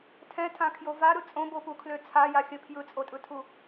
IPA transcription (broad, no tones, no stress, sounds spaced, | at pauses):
tʰ ɛ̃ tʰ ã kʰ j o v a ɾ ɯ t͡sʼ õ b o p u kʰ l ø t͡sʰ a j a xʲ ə pʰ j ɯ t͡sʼ o tʼ ɯ tʰ u